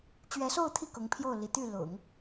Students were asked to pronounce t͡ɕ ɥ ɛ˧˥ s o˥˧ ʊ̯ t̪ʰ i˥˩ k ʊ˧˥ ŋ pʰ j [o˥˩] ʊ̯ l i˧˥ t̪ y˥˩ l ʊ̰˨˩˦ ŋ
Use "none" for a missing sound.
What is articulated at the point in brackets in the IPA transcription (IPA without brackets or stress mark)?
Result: o˥˩